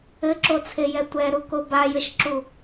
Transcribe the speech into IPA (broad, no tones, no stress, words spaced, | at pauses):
ɘǁot͡sʰejɛ tʷɛɾuko bajɘʃǁu